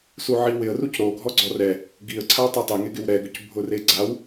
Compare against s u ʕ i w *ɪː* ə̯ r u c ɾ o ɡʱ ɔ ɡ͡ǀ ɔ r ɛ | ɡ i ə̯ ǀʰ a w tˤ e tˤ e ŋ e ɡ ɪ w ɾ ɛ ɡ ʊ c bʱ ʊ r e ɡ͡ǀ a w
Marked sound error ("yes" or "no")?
yes